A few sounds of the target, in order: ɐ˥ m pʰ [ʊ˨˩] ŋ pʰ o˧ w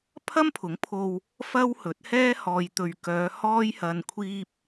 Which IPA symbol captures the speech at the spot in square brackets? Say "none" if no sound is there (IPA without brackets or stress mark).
ʊ˨˥